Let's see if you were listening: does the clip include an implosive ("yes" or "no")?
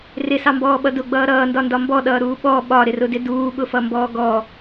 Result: yes